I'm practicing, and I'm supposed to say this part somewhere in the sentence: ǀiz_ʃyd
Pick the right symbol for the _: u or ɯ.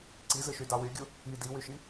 ɯ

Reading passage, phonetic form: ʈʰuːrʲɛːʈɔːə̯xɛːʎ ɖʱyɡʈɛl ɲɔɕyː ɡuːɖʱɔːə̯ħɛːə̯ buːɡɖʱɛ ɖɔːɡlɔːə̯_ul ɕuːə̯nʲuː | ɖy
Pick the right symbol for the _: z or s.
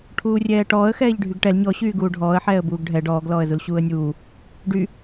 z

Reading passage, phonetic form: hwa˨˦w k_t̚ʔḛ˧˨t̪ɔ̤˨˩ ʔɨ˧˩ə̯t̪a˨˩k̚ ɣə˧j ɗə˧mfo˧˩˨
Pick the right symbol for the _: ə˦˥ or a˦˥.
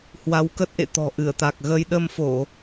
ə˦˥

